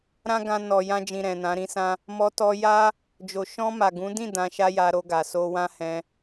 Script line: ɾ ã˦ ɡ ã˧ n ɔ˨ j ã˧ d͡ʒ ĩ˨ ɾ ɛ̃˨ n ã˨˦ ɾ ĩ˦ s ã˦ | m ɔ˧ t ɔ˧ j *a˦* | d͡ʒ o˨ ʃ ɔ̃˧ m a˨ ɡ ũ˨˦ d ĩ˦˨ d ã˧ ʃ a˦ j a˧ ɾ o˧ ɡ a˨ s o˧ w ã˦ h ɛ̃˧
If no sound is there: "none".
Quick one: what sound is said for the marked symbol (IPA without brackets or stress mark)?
a˦